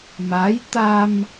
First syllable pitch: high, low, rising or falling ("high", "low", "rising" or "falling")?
rising